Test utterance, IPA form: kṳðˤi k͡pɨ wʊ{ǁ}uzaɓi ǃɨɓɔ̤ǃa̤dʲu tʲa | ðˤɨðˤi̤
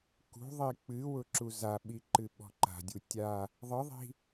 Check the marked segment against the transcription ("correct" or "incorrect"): correct